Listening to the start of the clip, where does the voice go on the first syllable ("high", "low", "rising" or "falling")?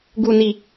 low